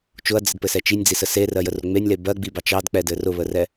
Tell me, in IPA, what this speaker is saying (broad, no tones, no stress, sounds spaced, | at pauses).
t͡ʃ ʊ ɐ̯ d͡z ɘ d p ɘ s ɛ t͡ʃ i nʲ d͡z i s ə s e r ɜ j ə r ʊ ŋ͡m e nʲ l e b ɜ ɡ͡b i b ɑ t͡ʃ ɑ d k͡p ɛ d ɘ r ʊ β ə r ɛ